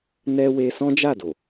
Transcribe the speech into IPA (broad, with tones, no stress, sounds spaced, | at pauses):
n ɛ˧ w e˧ s ɔ̃˦ d͡ʒ a˦˨ d o˨